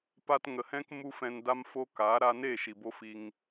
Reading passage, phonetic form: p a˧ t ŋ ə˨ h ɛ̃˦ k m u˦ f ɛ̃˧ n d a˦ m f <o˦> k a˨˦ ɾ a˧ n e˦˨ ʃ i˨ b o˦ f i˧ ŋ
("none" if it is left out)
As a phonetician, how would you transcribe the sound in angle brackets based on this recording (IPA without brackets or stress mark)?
o˦